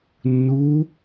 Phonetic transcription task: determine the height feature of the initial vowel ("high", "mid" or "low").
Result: high